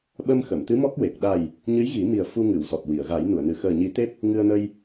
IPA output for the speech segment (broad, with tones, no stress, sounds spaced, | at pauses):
ɓ ə˧ m x ə˨˩˨ m t̪ ɨ˧˥ m ɔ˦˥ k̚ w e˨˩ k̚ ɗ a˨˩ j | ɲ ɨ˧˥ j ɣ i˨˩˦ m i˨˩ ə̯ f u˧ ŋ ɨ˨˩˨ w s ɔ˨˩ t̚ w i˨˩˨ ə̯ ɣ a˨˩˦ j n u˨˩˨ ə̯ n ɨ˨˩ x əː˨˩ ɲ i˨˩˦ t̪ e˦˥ p̚ | ŋ ɨ˧ ə̯ n ə˧ j